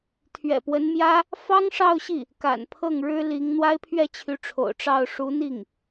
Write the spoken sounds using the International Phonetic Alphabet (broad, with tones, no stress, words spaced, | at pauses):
t̪ʰɥɛ̰˨˩pwə˧˥nmjä˥ | fɑ˥ŋʂɑ˥˧ʊ̯ɕi˥˩ | ka̰˨˩npʰɤ˥˩ŋ ɻɻ̩˥li˧˥ŋ n̪wa˥ɪ̯pʰɥɛ˥˩t͡ɕʰy˧˥ʈ͡ʂʰo̰˨˩ʊ̯ ʈ͡ʂɑ˥˩ʊ̯ ʂu˧˥n̪i˥˩ŋ